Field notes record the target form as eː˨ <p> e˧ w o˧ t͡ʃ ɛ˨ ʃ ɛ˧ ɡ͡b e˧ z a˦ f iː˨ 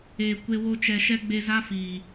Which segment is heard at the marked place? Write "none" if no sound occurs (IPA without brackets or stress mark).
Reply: kʷ